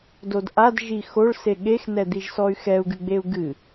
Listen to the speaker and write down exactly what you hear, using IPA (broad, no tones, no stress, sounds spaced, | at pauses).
d o d ʔ a d ʒ i x o ɭ s e ɠ e x n ɛ d̪ i ʒ s ɔ y̯ x ɛ u̯ ɡ ɨ ɡ͡b e u̯ ɡ ɨ